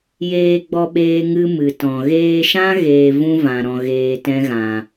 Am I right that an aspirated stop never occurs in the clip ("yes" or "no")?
yes